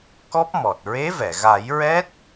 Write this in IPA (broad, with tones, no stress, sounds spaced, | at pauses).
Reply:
k ɔ˦˥ p̚ m ɔ˨˩ t̚ ɹ e˧˥ v ɛ˨˩˨ ɣ a˨˩˦ j ɹ ɛ˦˥ t̚